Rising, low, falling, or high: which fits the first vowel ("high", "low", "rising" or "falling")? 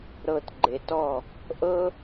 low